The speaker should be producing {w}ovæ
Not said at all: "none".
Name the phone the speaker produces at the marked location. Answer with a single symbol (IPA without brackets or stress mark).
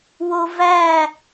w